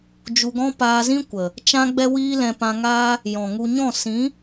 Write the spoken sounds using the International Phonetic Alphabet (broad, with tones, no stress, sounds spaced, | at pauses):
d͡ʒ u˧ ɡ ɔ̃˦ p aː˧ z ĩ˦ kʷ ə˨ | t͡ʃ ã˦ ɡ͡b ɛ˦ w iː˦ l ɛ̃˧ p ã˧ ŋ aː˦ | j ɔ̃˨ ŋ u˧ ɲ ɔ̃˦˨ s ĩ˨˦